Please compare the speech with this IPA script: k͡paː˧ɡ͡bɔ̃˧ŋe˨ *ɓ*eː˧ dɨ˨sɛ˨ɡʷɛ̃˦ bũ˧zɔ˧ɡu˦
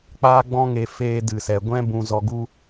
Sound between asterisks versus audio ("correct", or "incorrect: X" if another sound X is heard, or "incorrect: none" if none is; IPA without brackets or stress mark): incorrect: f